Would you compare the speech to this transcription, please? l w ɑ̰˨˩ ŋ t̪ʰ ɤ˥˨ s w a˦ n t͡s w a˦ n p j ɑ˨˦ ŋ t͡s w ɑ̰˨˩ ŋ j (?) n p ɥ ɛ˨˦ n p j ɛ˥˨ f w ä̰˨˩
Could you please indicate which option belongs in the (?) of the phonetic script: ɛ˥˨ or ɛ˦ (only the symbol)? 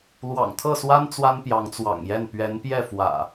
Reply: ɛ˥˨